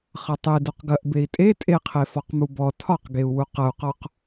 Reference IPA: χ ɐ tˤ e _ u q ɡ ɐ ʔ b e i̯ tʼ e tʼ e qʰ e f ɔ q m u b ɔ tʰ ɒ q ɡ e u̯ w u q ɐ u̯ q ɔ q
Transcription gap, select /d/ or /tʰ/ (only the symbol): d